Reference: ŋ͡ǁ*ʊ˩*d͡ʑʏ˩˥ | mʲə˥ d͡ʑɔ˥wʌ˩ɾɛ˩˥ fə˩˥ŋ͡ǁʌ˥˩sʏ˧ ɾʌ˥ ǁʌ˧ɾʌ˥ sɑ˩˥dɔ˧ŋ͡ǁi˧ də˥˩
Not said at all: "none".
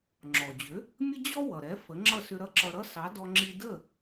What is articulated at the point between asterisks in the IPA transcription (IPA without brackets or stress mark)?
ɔ˩